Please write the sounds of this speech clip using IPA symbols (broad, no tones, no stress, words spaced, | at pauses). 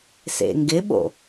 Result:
sḛŋɡɪɓo̰